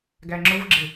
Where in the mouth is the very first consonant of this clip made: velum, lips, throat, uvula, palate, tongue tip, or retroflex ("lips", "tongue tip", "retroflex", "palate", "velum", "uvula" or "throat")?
velum